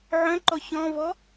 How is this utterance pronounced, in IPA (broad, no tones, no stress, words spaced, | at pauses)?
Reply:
ʕœ̃ǃɔ çɔ̃vɔ